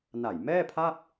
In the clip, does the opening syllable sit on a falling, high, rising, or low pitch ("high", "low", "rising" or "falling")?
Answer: low